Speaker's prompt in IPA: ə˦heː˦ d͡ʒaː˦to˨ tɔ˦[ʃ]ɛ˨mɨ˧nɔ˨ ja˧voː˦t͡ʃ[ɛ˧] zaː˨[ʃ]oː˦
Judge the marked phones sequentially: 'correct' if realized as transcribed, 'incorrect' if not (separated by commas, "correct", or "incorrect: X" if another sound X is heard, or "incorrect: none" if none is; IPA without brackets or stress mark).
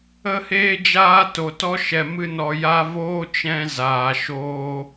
correct, incorrect: ɛ̃˧, correct